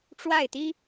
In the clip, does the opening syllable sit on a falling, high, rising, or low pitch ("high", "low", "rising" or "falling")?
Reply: falling